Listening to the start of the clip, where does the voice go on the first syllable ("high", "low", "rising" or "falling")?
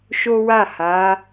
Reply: high